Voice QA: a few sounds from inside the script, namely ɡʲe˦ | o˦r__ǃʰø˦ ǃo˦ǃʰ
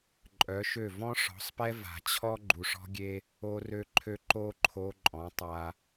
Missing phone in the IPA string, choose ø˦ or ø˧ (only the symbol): ø˦